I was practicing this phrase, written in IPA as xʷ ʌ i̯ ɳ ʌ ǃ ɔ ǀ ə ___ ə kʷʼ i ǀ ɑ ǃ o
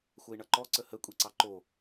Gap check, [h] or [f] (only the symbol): h